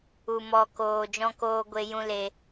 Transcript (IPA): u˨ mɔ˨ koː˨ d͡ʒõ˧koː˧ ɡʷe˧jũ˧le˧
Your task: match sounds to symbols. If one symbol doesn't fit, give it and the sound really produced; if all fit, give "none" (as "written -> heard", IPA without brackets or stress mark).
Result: õ˧ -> ɔ̃˧